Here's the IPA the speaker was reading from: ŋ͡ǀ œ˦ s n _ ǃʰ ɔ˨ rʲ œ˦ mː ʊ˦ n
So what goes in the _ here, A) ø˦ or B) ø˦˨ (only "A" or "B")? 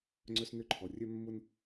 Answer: A